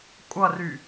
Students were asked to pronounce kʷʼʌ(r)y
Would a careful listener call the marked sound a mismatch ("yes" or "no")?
no